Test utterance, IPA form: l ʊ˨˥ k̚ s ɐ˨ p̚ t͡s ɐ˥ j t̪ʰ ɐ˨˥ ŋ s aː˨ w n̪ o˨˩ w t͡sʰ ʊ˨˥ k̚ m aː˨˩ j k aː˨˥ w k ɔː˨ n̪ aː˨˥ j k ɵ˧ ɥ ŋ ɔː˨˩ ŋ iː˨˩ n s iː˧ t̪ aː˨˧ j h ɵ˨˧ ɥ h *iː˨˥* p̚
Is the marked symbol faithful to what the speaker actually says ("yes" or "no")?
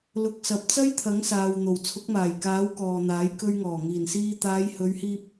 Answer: no